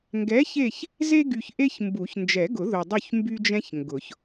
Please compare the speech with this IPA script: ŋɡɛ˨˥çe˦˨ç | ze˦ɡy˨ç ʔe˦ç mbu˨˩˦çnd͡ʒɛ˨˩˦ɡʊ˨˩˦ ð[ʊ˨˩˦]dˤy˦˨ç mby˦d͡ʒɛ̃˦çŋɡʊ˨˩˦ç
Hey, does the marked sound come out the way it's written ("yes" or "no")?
no